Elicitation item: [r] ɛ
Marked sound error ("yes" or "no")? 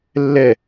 yes